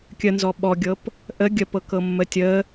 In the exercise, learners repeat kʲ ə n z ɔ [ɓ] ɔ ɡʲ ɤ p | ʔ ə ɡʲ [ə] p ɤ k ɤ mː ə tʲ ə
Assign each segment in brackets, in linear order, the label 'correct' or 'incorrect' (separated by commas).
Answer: correct, correct